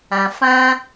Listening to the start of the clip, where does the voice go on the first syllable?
low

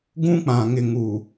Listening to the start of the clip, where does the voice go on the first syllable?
high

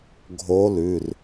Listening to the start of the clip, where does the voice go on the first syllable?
rising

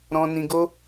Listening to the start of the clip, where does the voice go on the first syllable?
high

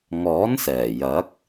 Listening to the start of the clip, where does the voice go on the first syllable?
rising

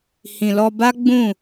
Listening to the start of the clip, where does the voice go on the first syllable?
low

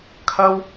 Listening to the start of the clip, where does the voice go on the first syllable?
high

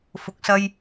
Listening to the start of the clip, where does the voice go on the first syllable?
rising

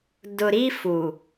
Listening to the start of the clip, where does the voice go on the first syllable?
low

